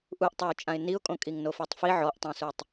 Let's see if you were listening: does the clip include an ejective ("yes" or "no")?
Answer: yes